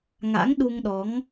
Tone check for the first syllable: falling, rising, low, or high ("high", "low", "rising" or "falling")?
rising